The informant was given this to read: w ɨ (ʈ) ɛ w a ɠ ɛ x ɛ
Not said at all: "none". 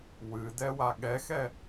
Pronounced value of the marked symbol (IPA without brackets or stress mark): d